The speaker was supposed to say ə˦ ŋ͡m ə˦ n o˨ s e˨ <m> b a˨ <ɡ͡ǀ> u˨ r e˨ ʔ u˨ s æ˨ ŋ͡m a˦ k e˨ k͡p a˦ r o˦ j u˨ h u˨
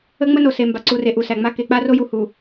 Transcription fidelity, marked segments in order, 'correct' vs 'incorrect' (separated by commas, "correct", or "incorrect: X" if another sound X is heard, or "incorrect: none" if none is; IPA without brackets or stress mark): correct, incorrect: ǀ